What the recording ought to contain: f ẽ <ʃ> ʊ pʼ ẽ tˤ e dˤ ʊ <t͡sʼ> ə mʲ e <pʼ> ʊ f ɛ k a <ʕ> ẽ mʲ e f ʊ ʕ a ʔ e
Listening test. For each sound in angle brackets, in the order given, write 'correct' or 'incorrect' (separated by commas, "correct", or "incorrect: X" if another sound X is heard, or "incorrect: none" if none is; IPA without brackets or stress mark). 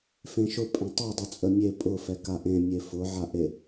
correct, correct, correct, incorrect: ʔ